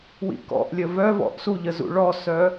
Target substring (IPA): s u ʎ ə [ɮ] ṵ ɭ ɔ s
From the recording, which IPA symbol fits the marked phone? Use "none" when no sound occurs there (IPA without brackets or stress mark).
z